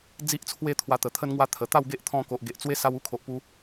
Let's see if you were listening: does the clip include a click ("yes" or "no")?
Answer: no